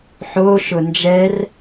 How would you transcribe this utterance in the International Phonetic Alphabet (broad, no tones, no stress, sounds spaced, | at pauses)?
ħ o ʃ ʊ n d͡ʒ ɛ r